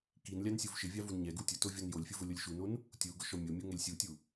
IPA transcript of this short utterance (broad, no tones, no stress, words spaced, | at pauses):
kinlʲan sʲuvʃɪvʲa vunɲɛɡu tʲʊ tovʲɔnjolʲfʲʊ vʊlʲolʲʃunon | tʲu ɡʊʃɔmʲomʲo ŋɛlʲsʲutʲu